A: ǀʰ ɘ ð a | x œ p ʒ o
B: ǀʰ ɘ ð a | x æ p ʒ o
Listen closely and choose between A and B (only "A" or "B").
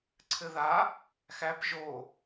B